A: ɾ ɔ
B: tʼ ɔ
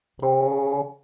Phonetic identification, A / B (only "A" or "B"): A